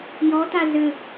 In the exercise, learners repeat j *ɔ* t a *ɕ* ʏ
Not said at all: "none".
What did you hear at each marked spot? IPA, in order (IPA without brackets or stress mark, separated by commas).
ɔ, z